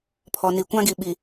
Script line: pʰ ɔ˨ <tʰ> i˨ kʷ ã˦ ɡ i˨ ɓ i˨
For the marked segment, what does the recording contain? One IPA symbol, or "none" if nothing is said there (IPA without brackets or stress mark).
n